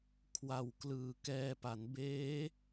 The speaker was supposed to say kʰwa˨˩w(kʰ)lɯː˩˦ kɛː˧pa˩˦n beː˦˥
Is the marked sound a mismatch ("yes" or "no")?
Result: yes